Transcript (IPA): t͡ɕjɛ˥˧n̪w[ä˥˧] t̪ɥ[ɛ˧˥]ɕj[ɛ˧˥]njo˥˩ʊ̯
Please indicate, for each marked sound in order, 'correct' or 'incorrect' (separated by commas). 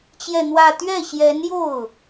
correct, incorrect, correct